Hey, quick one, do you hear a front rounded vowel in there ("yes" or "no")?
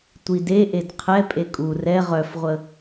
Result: yes